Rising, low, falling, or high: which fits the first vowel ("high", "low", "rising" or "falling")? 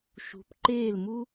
rising